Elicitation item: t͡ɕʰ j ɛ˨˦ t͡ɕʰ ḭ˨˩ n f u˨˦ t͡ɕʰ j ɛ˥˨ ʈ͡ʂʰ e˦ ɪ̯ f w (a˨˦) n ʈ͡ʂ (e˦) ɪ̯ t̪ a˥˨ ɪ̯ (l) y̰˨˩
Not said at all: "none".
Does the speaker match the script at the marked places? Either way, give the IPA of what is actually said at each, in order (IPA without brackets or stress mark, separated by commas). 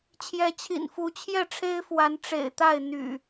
a˨˦, ḛ˨˩, n̪